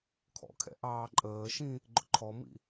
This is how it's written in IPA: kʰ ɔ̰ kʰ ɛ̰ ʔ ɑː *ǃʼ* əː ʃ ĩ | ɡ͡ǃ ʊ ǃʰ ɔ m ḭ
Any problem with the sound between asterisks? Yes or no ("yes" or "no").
no